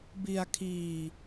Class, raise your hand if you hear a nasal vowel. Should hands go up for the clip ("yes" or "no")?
no